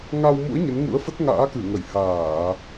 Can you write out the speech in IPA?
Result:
ŋa˧wmṵ˧˥ə̯ ɲə˨˦nŋṵ˧˥ə̯fə˦˥t̚ ŋa̰ː˧˥kɨ˧˩ ŋə˧˩jhaː˧˩˨

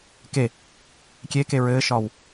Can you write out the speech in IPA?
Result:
ke | kʲeke ɹɘːʃɒːw

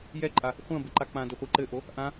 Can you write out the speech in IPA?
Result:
jɛǃʼa | χʷɐ̃ bɘǃak͡pãdɘ χʷiǃɘʔo | ʔã

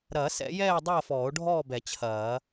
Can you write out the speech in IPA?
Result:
ɾɐː˨˩˦sɛ̰˨˩˦jɛː˥˨ dˤɐː˥˨fɔː˨˩˦o̯ɖʱɔː˥˨bɛ˨˩˦ t͡ɕʰɐː˨˩˦

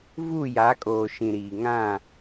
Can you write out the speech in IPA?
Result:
vu˦˨ja˨˦kʼoː˨ ʃĩ˨ɾiː˨ ŋã˦˨

